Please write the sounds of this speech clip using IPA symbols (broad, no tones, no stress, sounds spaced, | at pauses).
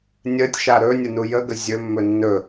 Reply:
nʲ ə tʲ ʃ a ɾ ɵ nʲ ə n u j ə ɡ ə zʲ ɵ mː ɵ nː ɵ